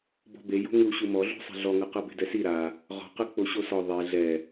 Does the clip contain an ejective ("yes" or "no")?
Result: no